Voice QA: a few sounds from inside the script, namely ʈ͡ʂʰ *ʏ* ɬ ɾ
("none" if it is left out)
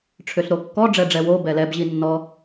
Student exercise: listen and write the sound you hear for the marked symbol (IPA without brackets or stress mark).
ʏ